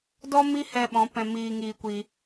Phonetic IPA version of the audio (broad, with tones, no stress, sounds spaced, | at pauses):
d ɔ˦ m i˦ h ɛ˧ ɓ ɔ̃˨˦ p ɛ̃˧ m iː˧ ŋ iː˧ kʷ iː˧